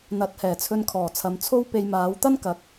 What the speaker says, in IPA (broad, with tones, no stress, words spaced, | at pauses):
n̪ɐ˨˥t̚hɛː˨˩t͡sʰɵ˧nkʰɔː˨˩ t͡sʰɐ˨mt͡sʰo˥w pe˧jmaː˨˥w t̪ɐ˥nkɐ˨k̚